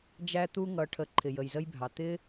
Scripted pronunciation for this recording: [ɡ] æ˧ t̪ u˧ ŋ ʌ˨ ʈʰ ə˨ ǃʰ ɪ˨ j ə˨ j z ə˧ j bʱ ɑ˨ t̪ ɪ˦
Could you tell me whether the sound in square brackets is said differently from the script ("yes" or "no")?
yes